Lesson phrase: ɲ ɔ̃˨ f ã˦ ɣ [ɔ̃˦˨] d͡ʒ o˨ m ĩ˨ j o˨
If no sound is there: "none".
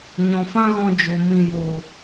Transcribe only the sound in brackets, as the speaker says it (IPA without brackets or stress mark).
ɔ̃˧